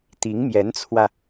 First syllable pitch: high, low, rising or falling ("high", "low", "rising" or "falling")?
rising